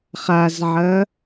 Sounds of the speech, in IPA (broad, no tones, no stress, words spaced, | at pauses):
χazʕɐ